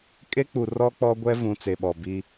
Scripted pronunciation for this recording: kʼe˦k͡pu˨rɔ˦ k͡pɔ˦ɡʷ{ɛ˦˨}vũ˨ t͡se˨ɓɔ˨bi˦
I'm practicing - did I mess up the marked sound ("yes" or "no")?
yes